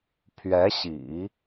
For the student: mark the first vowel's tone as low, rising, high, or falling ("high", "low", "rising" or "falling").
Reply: rising